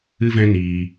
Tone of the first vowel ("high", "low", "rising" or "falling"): high